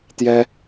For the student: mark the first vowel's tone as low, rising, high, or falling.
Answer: high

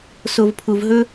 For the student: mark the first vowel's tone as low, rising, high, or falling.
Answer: low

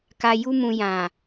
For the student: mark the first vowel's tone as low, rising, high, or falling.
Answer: low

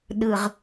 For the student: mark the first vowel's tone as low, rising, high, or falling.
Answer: low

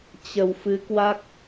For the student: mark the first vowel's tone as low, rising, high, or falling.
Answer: low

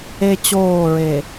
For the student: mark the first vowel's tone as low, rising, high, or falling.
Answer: high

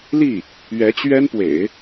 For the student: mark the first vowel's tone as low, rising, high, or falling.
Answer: falling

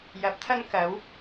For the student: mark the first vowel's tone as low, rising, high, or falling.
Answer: rising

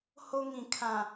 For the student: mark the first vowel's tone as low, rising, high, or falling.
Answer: high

